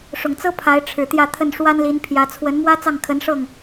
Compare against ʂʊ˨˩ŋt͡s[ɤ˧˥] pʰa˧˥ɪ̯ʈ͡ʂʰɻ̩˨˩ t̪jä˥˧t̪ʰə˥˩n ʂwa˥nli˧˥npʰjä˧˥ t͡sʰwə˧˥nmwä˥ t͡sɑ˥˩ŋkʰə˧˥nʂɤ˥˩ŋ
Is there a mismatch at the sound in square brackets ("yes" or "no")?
yes